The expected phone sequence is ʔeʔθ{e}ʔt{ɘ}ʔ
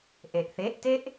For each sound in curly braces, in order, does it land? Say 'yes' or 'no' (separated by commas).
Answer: yes, no